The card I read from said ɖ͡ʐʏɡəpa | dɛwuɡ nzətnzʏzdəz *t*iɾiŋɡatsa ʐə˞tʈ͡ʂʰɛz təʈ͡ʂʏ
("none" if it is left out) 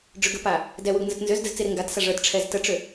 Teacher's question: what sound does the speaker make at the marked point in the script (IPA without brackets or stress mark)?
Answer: t͡s